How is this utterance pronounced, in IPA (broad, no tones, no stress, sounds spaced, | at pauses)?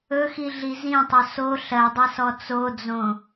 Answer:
ɵ x i ɮ i z ĩ tˤ o s o ɬ ɜ dˤ e s ɔ t͡s o d͡z õ